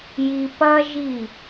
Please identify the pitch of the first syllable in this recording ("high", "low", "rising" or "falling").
low